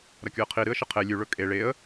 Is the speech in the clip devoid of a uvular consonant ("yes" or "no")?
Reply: no